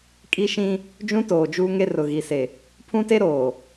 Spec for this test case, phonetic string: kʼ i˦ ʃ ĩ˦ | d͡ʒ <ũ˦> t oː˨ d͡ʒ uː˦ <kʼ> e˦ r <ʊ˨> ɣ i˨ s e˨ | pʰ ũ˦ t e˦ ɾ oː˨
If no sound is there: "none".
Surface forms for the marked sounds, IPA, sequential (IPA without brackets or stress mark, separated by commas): ũ˦, ŋ, ʊ˨